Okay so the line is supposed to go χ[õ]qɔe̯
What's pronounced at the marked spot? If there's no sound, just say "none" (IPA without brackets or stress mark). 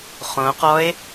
õ